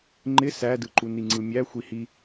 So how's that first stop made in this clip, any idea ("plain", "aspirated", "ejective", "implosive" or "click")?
click